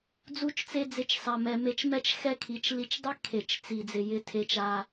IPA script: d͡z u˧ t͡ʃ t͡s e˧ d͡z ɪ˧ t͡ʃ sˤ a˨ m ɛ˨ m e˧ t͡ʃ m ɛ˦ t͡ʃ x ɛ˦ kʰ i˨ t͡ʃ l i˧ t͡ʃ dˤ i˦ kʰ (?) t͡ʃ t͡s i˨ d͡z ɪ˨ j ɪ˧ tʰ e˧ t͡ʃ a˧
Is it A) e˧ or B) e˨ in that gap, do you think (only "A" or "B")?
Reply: B